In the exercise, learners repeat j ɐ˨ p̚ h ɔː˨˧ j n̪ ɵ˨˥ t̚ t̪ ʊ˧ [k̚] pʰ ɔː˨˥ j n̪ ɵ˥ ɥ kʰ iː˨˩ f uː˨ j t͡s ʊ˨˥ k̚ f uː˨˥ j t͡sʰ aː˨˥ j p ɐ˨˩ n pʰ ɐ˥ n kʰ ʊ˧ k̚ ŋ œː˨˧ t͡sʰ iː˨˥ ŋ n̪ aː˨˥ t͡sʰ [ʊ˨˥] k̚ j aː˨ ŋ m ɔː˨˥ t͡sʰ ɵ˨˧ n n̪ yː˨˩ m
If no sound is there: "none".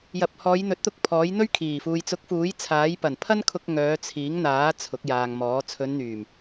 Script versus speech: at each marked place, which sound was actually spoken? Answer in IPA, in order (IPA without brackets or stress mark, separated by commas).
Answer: k̚, ʊ˨˥